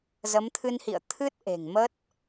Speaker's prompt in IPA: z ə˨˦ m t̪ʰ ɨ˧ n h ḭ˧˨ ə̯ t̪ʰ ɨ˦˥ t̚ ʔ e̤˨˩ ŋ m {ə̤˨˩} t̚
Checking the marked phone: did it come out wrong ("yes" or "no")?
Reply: yes